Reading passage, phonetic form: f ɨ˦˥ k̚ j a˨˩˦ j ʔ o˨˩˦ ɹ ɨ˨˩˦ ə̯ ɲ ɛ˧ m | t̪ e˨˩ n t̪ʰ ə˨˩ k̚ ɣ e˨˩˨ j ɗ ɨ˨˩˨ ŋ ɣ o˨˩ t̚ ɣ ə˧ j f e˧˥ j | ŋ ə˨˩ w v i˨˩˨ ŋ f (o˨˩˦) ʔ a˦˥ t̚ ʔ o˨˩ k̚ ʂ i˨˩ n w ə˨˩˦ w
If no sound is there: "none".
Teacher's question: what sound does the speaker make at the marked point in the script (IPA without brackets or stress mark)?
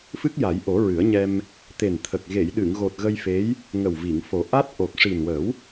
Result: o˨˩˦